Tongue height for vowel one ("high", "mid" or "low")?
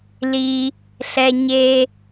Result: high